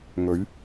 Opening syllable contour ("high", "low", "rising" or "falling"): rising